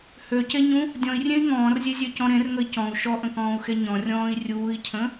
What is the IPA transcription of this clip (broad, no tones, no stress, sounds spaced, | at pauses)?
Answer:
h ø c e ɲ ũ | dʲ ɔ̃ i̯ rʲ ẽ i̯ ŋ ɔ̃ː r zʲ e zʲ ø c ɔ̃ ɾ ẽ r ŋ ə i̯ c ɔ̃ u̯ ʃ ɔ ʔ ə̃ k ɔ̃ː u̯ x e ɲ ɔ̃ rʲ ɔ̃ː i̯ rʲ uː i̯ cʰ ə̃